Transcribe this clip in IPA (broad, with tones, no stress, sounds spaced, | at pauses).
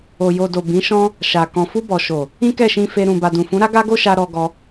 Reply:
o˨ j o˨ d o˨ b ĩ˨˦ ʃ ɔ̃˦ | ʃ a˨ k ɔ̃˨ f u˧ b ɔ˨ ʃ o˨ | ĩ˦ k ɛ˦˨ ʃ ĩ˧ f e˧ ɾ ũ˨ b a˨ d ũ˨ f ũ˨˦ ɾ a˦ ɡ a˦ ɡ o˦ ʃ a˧ ɾ ɔ˧ ɡ ɔ˧